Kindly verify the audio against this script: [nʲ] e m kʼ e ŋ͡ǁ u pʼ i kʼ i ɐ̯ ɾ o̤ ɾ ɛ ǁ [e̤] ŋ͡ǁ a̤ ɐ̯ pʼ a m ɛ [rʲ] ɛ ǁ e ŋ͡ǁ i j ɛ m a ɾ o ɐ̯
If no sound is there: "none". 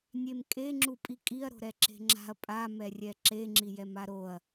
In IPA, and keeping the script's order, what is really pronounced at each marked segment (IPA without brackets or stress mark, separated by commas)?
nʲ, e̤, rʲ